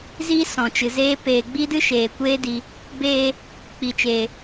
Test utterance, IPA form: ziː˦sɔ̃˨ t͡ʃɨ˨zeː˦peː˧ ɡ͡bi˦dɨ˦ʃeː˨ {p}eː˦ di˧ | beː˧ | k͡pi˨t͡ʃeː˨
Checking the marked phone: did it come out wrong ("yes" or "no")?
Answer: yes